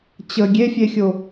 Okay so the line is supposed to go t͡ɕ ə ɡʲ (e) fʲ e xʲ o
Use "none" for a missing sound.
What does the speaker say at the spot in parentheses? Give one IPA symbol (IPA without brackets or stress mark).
e